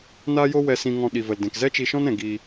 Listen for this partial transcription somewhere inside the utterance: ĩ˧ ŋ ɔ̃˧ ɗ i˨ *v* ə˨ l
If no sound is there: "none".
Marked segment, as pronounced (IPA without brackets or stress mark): v